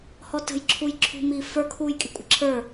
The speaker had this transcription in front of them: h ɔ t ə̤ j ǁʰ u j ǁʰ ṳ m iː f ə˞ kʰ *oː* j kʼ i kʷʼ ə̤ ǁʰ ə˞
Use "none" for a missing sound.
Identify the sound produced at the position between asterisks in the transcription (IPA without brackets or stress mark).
uː